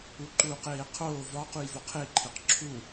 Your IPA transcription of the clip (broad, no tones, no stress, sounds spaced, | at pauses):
u ǃ uː q eː qʰ oː v ɒ q u j v o qʰ e ǃʰ e q ǁʰ u